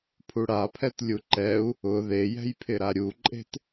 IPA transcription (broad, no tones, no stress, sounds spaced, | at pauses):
pʰ u ɽ a pʰ ɛ t lʲ u ǃ ɛ u̯ | ʊ ð e j ɛ̤ j pʰ ɪ ɾ a ɾʲ u ǃʼ e̤ t